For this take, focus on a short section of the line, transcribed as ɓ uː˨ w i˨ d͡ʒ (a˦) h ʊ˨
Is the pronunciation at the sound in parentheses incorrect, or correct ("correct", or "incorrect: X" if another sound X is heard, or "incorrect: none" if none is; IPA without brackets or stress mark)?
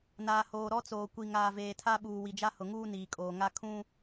correct